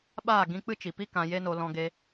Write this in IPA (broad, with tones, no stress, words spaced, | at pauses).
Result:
ɓaː˦˨ ɡĩ˧k͡pɨ˦t͡ʃi˨pi˦ kã˧je˦no˧ lɔ̃˧ɡe˧